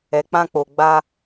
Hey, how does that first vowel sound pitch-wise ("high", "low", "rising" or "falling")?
low